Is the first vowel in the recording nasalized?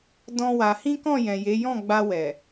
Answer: yes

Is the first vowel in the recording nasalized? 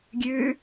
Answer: no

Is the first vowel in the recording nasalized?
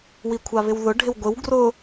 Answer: no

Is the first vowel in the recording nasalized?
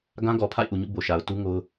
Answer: yes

